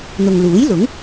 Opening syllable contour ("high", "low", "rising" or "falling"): low